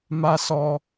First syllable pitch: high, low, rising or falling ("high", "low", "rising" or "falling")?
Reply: high